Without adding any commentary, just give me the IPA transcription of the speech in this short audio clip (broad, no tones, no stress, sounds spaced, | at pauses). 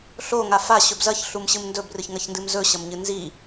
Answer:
ɬ o ŋ a f a ɕ ɵ b z ɐ ç ɬ u m ɕ ɨ m n d ɵ b r ɨ ç ŋ ɐ ç n d ɨ m z ɵ ɕ ɐ m ɲ ɨ n z i